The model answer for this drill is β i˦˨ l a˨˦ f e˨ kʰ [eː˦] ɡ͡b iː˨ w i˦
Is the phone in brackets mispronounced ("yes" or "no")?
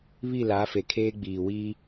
no